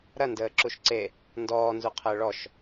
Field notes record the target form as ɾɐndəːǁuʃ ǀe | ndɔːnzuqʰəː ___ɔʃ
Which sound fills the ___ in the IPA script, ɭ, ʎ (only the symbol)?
ɭ